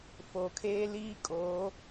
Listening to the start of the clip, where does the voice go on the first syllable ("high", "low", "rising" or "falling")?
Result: low